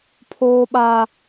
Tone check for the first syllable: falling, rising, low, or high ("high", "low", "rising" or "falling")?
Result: high